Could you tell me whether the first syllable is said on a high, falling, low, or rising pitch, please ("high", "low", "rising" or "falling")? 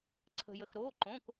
low